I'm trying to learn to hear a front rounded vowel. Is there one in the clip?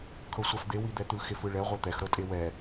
no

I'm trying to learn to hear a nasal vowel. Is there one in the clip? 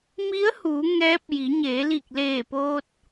no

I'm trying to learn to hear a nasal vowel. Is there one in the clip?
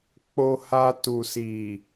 no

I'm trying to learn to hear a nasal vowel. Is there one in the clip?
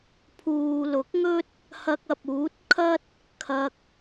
no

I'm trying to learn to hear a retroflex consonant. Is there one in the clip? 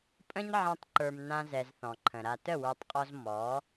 no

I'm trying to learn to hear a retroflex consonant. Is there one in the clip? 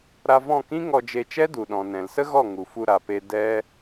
no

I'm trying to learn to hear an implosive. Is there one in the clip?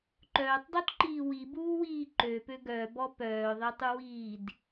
no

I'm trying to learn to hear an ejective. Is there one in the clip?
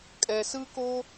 yes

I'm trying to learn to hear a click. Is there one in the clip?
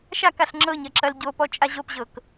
yes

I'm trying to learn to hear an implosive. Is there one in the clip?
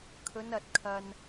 no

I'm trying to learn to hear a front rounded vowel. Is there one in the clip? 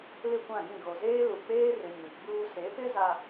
no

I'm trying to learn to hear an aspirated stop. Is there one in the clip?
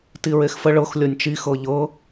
no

